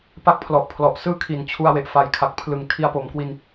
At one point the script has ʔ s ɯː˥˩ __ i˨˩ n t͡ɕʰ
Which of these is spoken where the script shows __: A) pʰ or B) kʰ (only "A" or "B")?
B